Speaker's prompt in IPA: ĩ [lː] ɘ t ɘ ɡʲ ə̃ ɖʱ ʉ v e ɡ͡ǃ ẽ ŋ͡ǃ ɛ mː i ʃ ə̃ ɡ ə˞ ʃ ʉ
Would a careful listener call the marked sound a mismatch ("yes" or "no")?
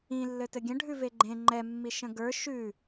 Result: no